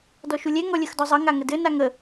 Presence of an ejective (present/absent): absent